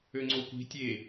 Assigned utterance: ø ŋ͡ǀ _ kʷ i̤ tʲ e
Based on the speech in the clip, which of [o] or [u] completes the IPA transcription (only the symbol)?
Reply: o